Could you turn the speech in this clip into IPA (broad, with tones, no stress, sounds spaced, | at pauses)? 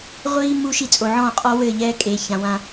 ʁʷ iː˧ mː u˧ ʃ i˧ t͡sʼ o˨ ʕ ɔ̃ː˦˨ qʼ ɔ˦ w ɘː˦˨ ʎ ɛː˦ kʼ eː˨ ç ã˨ w ã˧